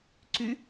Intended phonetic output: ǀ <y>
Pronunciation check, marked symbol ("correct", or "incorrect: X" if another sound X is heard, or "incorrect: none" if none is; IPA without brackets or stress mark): correct